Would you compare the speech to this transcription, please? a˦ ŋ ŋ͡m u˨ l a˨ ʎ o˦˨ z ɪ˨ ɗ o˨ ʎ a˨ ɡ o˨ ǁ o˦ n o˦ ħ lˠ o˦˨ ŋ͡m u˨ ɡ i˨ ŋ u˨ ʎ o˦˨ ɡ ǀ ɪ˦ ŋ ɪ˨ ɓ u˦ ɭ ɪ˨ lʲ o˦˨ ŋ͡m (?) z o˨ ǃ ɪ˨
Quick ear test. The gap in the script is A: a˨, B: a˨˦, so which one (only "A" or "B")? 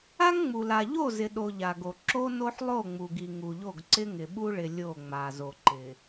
A